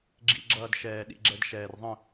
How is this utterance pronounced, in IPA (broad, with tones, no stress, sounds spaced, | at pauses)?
ɡ͡ǁ ḭ˨ ɡ͡ǁ ʌː˨ d ʃ ɛː˨ ɗ ḭ˨ ɡ͡ǁ ɛ˨ d ʃ ɛː˨ r ðˤ ə̃˦˨